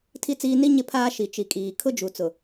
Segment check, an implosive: absent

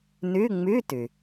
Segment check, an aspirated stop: absent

